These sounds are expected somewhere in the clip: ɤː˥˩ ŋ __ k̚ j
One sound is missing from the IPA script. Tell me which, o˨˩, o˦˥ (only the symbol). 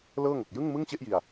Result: o˨˩